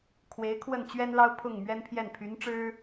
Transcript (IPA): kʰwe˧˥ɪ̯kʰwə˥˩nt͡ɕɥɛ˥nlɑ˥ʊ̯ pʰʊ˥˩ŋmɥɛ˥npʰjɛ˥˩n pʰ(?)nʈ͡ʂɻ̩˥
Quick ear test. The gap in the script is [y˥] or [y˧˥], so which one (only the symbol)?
y˧˥